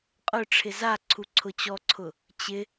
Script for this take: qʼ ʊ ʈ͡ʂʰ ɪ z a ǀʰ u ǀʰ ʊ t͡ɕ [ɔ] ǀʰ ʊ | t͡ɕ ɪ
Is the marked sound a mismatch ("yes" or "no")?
no